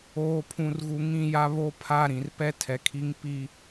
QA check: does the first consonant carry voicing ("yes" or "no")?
no